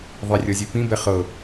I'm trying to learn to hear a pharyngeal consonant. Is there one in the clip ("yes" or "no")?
no